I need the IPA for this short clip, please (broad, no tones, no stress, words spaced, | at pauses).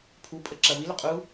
pʰupʼə ǁɐvilʏ qʼu